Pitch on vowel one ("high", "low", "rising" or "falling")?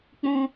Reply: high